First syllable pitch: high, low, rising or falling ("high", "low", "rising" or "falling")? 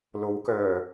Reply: rising